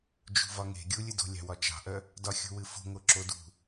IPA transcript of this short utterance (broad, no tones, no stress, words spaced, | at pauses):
d͡ʒṳvɒŋe̤ ɡʲulʲɨdo̤lʲɑ̤ wɒt͡ʃɑ̤ʔœ | dɒxʲo̤wɨfo̤ ŋoǁodṳ